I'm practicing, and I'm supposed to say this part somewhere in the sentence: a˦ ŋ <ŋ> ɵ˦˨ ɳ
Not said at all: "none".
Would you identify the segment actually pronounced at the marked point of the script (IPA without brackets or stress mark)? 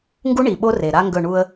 ɡ